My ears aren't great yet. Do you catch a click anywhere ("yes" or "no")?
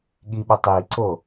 yes